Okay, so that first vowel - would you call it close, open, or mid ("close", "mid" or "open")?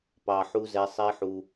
open